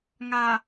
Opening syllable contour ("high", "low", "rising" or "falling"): low